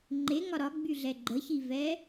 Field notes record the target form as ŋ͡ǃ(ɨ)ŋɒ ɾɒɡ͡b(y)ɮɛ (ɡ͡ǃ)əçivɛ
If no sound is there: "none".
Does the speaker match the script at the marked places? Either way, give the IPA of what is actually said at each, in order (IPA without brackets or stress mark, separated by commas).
e, y, ɡ͡ǃ